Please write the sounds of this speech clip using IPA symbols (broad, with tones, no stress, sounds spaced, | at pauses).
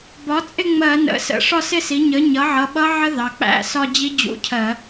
b ɒ˩˥ t͡sʼ ɪ˥˧ ŋ͡m ɜ˧˩˧ n ə̰˩˧˩ s ə̰˧˩˧ ʂ ɒ˥˧ s ɪ˥˧ s i˩˥ ɲ ə˩˥ ɲ ʌ˩˥ ʕ ʌ˩˧˩ ɓ ʌ˦˥ ʕ ə˦˥ ð ɑ˩˧˩ k͡p æ̰˥˧ s ɒ˥˧ d͡ʑ i˦˥ d͡ʑ ṵ˧˥˧ cʰ ɜ˧˩˧